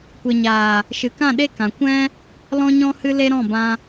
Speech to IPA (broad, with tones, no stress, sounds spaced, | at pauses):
kʷ e˨ ɲ aː˨ | ʃ ɨ˨ k ã˦˨ ɗ e˦ k ã˨ kʷ ɛ̃˦ | l ɔ̃˦ ɲ ɔ̃˦ h ɨ˦ l e˦ ɾ ɔ̃˦˨ b ã˧